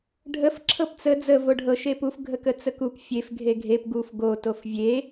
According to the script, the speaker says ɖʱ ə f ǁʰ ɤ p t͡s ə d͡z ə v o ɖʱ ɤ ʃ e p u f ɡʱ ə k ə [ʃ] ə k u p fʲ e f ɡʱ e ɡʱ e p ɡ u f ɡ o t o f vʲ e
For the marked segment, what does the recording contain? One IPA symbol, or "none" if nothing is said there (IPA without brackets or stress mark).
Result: t͡s